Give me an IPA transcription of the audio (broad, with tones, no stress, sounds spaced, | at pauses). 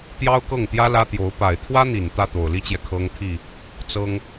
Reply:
t̪ j ɑ˥ ʊ̯ k ɤ˥˩ ŋ t̪ j ä˥ l ä˥ t̪ j o˧˥ ʊ̯ p a˨˩ ɪ̯ t̪ʰ w ä˥ n̪ i˨˩ n t̪ ä˥˩ t̪ o˨˩ ʊ̯ l i˥ t͡ɕ j ɛ˨ kʰ ɤ˥ ŋ t̪ʰ i˥˩ | t͡s ɤ˥ ŋ